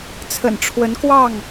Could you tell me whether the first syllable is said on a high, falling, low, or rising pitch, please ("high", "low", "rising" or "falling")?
low